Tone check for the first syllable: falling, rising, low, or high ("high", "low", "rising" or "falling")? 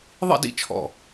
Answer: falling